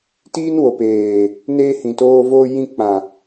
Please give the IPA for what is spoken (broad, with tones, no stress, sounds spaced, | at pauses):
t iː˦ n w o˨ p eː˨ | n eː˧ h ĩ˨ t oː˧ v oː˧ j ĩ˧ k͡p ã˨